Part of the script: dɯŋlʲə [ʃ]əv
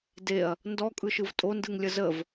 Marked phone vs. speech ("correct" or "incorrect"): incorrect